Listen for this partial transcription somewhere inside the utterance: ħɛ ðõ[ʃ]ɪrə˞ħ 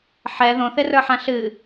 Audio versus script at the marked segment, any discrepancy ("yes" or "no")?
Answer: yes